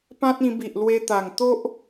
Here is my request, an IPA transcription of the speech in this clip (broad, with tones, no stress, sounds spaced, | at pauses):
p ã˦ t̚ ĩ˧ b i˨ ʔ l w e˧ t̪ a˨˩ ŋ t̪ o˦ ʔ